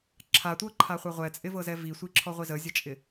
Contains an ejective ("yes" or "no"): yes